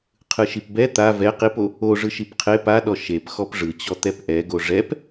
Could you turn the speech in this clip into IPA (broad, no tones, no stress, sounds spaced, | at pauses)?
qʰ ɯ ʃ i p b ɛ t̪ a v ɛ q i p o | o ʐ ɯ ʃ i p qʰ e p a ɗ ɔ ʃ e p x ɔ p ʐ ɯ t͡ɕ ɔ t̪ ɛ p ʔ ɛ ɡ o ʐ ɛ p